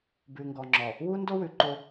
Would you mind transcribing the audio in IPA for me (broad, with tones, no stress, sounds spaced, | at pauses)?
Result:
b ʉ˨ ŋ ɡ ɔ˨ ŋ͡ǁ ɔ˨ | w u˦ n d o˦ w ʉ˨ ǃ o˦